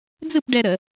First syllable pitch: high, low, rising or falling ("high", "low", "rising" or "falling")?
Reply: falling